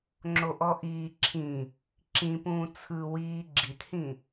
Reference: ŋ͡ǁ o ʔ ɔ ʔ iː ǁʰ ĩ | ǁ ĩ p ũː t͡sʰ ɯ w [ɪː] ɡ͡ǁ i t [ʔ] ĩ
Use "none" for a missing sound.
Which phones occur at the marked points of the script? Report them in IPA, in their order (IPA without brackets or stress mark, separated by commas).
iː, h